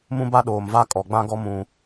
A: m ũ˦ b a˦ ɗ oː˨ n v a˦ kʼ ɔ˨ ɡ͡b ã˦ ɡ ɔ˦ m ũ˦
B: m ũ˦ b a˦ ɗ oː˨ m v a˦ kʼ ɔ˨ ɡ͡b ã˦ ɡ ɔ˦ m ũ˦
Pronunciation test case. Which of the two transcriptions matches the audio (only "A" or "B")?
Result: B